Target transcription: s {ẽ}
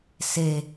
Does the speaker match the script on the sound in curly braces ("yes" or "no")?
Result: no